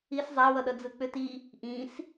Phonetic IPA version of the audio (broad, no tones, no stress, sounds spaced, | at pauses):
i s zˤ æ w ʌ ɗ ʌ d͡z ɯ k͡p ʏ t i | ʔ ĩ s